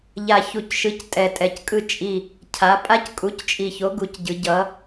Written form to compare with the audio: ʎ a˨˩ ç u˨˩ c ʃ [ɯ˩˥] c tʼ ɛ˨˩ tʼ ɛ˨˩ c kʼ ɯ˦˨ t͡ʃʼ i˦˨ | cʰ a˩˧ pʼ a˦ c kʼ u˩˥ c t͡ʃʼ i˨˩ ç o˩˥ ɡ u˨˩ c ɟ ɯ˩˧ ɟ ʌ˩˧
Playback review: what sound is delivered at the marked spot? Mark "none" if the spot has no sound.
ɯ˩˥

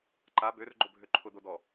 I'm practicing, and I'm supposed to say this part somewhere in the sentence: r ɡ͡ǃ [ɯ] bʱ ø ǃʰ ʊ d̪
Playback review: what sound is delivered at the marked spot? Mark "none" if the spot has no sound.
ʊ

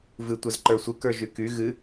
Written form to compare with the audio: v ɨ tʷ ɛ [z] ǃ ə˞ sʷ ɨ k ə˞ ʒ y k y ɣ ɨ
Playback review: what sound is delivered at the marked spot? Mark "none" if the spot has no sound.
z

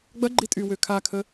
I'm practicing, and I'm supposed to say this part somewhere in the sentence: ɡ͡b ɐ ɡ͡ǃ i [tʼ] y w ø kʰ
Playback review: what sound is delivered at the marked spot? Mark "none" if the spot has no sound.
tʼ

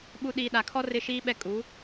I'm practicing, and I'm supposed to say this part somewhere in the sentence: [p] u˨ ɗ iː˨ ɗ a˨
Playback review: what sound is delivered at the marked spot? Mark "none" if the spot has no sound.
ɓ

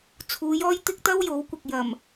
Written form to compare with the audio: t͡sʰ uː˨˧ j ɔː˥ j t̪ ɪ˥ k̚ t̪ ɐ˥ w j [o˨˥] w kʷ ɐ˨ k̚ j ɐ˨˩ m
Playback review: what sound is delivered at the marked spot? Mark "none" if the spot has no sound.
o˨˥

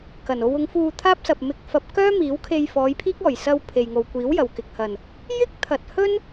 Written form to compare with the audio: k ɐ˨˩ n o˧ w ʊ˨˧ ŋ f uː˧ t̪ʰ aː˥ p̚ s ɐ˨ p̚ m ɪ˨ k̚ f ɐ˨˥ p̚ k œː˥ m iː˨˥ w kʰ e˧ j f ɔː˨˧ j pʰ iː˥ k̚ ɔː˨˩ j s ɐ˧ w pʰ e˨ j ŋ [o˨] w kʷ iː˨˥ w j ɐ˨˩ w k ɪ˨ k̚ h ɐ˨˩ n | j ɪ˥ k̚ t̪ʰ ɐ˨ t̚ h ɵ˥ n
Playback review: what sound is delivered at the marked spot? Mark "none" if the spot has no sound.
o˨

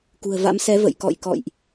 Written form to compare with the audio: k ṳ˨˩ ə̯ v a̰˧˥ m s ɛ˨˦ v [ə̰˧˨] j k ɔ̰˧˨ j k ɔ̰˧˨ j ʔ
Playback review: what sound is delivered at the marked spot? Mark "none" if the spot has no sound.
ə̰˧˨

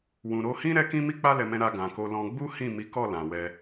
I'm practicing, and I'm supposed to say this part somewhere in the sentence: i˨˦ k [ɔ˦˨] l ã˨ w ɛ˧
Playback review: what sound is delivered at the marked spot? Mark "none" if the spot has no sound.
ɔ˦˨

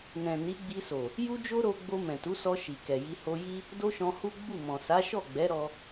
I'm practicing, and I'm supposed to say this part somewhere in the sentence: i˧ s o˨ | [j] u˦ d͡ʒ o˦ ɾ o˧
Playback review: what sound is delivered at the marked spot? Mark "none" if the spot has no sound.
j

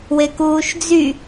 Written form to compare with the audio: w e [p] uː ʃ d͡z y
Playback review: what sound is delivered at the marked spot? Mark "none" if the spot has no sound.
k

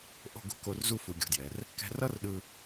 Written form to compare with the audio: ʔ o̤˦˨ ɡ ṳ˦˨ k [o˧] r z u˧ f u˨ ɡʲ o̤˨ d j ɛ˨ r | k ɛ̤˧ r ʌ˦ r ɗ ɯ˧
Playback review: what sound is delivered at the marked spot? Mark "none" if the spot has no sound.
o˧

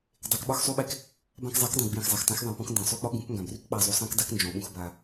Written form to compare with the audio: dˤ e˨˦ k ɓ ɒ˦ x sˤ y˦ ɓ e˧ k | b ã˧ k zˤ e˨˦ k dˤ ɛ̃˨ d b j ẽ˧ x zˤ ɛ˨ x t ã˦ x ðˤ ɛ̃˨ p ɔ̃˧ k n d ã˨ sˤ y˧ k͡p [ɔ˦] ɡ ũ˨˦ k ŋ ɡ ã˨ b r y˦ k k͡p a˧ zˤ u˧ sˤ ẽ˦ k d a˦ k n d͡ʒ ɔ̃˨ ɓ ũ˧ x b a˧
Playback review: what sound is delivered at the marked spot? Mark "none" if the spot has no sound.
ɔ˦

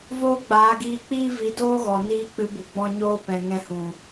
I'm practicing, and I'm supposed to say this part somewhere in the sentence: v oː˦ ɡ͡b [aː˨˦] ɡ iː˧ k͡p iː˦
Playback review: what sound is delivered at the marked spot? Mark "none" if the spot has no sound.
aː˨˦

